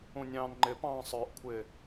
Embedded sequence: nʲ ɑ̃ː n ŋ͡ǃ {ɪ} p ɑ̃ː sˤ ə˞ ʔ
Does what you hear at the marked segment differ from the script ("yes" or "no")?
no